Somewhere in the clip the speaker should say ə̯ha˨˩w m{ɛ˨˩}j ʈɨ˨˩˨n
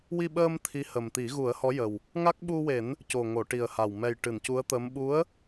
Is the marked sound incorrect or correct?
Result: correct